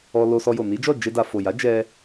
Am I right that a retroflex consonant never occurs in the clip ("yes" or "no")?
yes